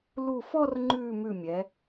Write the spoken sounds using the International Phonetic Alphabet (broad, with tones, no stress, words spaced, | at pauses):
lu˧˩fɔ˥˧rŋ͡ǃʉ˧˩ mʉ˧˩mʲɛ˩˧